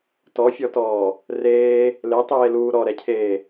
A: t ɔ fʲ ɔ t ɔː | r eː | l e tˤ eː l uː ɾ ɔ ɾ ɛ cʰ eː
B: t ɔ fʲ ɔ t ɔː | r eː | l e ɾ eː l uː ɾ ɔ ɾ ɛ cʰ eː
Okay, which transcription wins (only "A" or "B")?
A